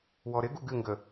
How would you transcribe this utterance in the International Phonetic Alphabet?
wɔɾɪɡu ɡɨŋɡə

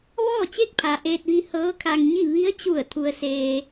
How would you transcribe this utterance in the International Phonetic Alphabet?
ʋɔː˥˨t͡ɕe˥˨k̚pʰa˩ ʔeː˧t̚ʋi˧ hɤː˧˥kʰa˧ŋɲi˥˨ ʋi˧˥ə̯t͡ɕu˧˩ə̯ t̪ʰu˧ə̯seː˧

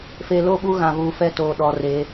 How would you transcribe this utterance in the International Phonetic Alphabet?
feː˨lo˦˨ɓuː˦ ɣã˨vuː˨fɛ˦toː˨ ɗɔ˨re˨˦

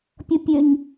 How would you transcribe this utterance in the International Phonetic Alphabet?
pʲʌpʲøɲ

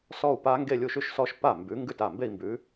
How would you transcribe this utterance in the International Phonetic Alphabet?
sɔ˥˧u̯pa˦˥ ŋɡe˥˧lʲu˥˩ʃʉ˥˧ʃsɔ˦˥ʃ pa˥˩mbʉ˨˥ ŋɡʉ˥˩ta˥˩mbe˥˧i̯mbʉ˨˥

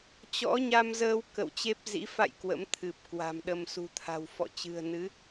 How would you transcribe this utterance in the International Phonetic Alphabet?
t͡ɕɔ̰˧˥ɲa˧mzəː˧w kə̰˧˨wt͡ɕe˦˥p̚zḭ˧˥ fa̰˧˨j kwə̰˧˥mt̪ʰɨ˨˩p̚kwa̤˨˩mɗə˧m sṳ˨˩t̪ʰa̤˨˩w fɔ̰˧˨t͡ɕɨ̤˨˩ə̯nɨ˨˦

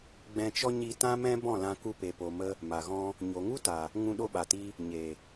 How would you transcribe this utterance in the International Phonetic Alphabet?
ɡ͡bɛ̃˧t͡ʃɔ˦ ɲi˧ tã˦mɛ̃˦bɔ̃˦˨lã˧ ku˧pe˨po˨mə˧ | ma˨ɣɔ̃˧ | ɲo˨ŋu˦ta˨ | ŋũ˧ɗo˧ɓa˨ti˧ | ɲe˨

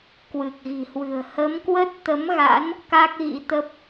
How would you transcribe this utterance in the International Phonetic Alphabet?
kwɨ˨˩k̚ɣi̤˨˩hwɨ̤˨˩ə̯ hə˨˦mkwə˦˥t̚ t̪ə˨˦mɣa̰˧˥n | ka˦˥k̚ɣḭ˧˥t̪ə˦˥p̚

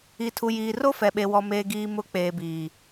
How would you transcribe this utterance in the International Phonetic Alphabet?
i˨tʰu˨jiː˨ro˦ fɛ˨ɓe˨wɔ˨ meː˨ɡiː˨ mʊ˨˦k͡peː˨ biː˨

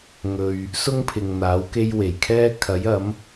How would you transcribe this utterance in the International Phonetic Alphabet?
ŋɵ˨ɥ | sʊ˥ŋ pʰɪ˨ŋn̪aː˨˥wke˥jwe˨˩j kʰɛː˥kʰɐ˨˥jɐ˨˥m

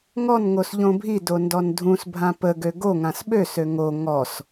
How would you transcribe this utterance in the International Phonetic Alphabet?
ŋɔnŋos ʎõbʱido ndɔndʱũsbʱã pəɡø ɡoŋãs ɓøsø ŋo ŋɔs

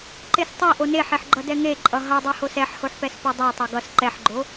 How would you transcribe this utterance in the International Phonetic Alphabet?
ǃestˤe ʔoneħeħɡ͡ǃʌ dɛŋeǃʼʌ ɦʌdˤɛhos ɛħhoħpɛs podˤo tˤɛɡʌs ǃɛħɡ͡ǃo

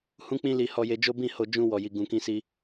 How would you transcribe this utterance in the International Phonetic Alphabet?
hũ˦k͡pĩ˦li˧ hɔ˧je˧d͡ʒo˦ bĩ˦˨ho˧ d͡ʒũ˧wɔ˨ji˨ ɡũ˨kĩ˧si˧

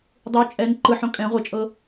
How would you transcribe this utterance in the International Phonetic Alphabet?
dˤu t͡ʃʼɛn ǃɯħõ kʼɛ̃ ʁʷɤt͡ʃʼɤ

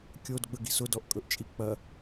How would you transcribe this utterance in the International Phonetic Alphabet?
kʲodɡ͡bəɡi̤s ʊdɔʔkʼɵʔt͡ʃʼi k͡pɐ

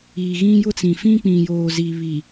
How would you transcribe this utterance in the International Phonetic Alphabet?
i˨ ɣĩ˦jʊ˦t͡sĩ˨ fĩ˦k͡pĩ˨joː˨ zi˨ βi˨

